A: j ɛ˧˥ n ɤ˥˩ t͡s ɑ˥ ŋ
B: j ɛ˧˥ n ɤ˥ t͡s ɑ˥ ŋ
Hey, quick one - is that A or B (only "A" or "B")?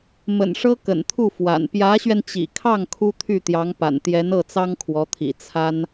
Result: A